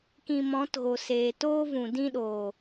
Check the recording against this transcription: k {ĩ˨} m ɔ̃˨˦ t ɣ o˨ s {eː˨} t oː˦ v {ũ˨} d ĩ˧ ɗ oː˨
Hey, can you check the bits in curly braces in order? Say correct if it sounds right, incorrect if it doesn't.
incorrect, correct, correct

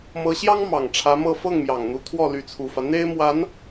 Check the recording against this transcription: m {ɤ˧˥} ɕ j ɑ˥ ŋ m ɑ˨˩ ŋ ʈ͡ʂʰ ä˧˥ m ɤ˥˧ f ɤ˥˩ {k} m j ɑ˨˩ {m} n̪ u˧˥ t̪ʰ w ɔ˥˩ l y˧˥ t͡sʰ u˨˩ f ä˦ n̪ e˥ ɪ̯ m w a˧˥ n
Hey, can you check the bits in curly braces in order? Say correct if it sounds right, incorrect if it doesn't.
correct, incorrect, incorrect

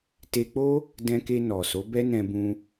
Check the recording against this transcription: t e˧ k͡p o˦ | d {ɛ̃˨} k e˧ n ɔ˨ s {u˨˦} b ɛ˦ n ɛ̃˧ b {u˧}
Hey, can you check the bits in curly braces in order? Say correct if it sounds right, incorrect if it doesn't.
incorrect, incorrect, incorrect

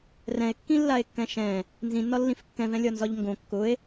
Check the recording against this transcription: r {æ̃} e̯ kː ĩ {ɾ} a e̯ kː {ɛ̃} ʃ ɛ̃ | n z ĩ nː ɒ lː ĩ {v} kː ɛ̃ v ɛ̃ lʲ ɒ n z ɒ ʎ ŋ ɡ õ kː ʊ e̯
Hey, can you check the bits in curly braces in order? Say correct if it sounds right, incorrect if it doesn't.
incorrect, incorrect, correct, incorrect

